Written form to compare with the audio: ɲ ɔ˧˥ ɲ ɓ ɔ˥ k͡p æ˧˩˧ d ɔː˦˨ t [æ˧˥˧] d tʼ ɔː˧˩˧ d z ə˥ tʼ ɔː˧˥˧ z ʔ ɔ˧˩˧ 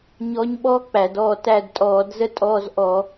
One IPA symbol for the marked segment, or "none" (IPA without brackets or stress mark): æ˦˨